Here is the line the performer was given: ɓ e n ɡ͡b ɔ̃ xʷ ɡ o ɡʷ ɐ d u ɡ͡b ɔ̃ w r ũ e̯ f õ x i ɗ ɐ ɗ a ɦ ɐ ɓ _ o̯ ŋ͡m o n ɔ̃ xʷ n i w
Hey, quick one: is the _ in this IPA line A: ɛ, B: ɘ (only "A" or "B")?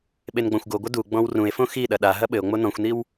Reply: B